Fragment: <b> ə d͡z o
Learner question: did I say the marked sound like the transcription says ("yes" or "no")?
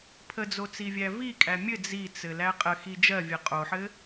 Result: no